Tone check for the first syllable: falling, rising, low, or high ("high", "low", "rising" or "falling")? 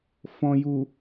low